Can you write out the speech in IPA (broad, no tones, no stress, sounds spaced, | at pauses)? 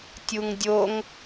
tʲ u ŋ dʲ o ŋ